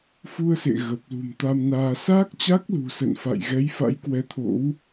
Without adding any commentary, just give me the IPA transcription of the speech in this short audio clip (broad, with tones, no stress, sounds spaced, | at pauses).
f u˧ ə̯ s ḛ˧˨ ɣ ə˨˩ p̚ l ṳ˨˩ m t̪ a˧ m n aː˧ s aː˦˥ k̚ t͡ɕ a˦˥ k̚ l ṳ˨˩ s ə̰˧˨ n f a̰˧˨ j ɣ ɛ˨˦ j f a̰˧˥ j k w ɛ˨˦ t̪ʰ o̰˧˥ w